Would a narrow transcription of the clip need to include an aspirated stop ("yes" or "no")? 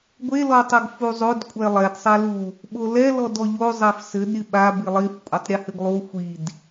no